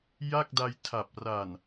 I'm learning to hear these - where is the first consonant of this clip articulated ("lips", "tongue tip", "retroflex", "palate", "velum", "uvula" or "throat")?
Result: palate